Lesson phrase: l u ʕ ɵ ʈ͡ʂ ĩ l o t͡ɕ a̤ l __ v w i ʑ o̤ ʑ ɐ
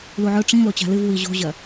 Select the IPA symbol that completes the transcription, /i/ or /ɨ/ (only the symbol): ɨ